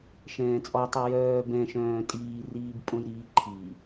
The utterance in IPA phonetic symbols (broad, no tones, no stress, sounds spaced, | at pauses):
ʃ ɛ̃ː t͡sʼ ɔ tˤ i j œː b ɛ̃ ʃ œ̃ː tʼ iː r iː b pʼ õ j ɾ iː ǃʰ i